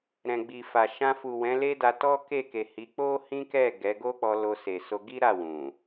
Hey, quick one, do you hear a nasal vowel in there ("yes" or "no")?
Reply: yes